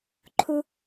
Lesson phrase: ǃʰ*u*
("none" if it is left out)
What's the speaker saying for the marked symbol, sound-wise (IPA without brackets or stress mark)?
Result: u